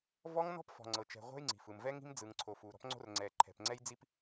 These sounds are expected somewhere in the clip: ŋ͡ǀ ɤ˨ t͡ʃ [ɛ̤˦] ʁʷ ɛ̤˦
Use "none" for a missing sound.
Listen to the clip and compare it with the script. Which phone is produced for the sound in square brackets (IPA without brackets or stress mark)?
ɛ̤˨